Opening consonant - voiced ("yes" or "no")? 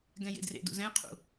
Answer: yes